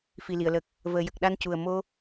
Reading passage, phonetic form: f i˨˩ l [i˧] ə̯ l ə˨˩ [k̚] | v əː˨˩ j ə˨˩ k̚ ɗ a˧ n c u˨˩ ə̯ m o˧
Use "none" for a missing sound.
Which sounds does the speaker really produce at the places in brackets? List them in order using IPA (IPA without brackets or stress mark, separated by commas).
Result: i˨˩˨, k̚